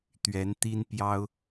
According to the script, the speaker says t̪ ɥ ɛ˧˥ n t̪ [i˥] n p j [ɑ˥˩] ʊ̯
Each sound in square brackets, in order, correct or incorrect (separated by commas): correct, incorrect